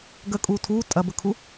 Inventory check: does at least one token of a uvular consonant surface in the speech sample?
no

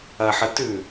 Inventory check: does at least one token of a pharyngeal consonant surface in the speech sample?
yes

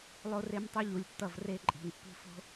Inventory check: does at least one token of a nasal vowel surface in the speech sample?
no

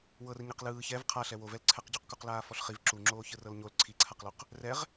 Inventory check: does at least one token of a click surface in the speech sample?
yes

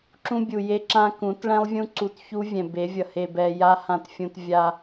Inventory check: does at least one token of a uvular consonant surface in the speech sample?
no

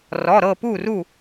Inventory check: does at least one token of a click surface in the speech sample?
no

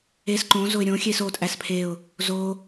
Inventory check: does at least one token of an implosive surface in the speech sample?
no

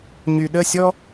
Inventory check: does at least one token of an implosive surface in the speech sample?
yes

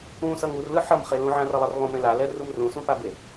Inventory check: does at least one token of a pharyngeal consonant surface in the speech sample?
yes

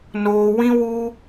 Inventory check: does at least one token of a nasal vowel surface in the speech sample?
yes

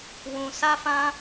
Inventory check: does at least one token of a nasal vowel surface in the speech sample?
yes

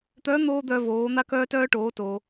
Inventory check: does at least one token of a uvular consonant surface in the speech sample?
no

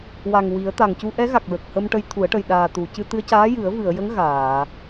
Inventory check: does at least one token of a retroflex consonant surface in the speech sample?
yes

